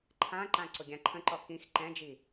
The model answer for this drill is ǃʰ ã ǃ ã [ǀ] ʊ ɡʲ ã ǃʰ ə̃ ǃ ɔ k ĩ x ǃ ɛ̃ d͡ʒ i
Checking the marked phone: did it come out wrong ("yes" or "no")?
no